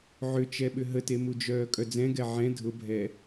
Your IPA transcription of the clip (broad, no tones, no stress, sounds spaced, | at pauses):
ʕ ʏ t͡ʃ ɛ ɓ ʏ ɦ ə t e m u d͡ʒ œː kʼ œ d͡z ɛ̃ ɡ ɛ ʕ ɛ̃ dʱ ʊ bʱ ɛ